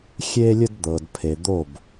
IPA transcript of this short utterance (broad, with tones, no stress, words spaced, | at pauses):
xʲe˦lʲə˦d d̪ɤ˨dpʰe˨ d̪o˦˨b